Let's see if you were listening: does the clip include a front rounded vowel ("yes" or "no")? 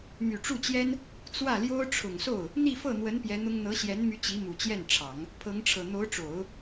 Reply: yes